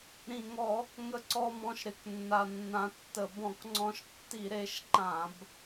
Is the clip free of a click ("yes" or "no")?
no